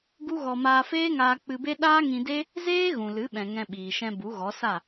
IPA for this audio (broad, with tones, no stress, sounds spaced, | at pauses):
ɡ u˦ ɣ ɔ˧ m aː˧ f eː˦ ŋ aː˧ k͡p ɨ˧ b e˦ ɗ aː˦ ŋ ĩ˧ d e˦ | z eː˦ ɣ ũ˨ l ɨ˨˦ ɓ ɛ̃˨ ŋ ɛ̃˧ ɓ iː˨ ʃ ɛ̃˧ b u˨˦ ɣ ɔ˨˦ s a˦˨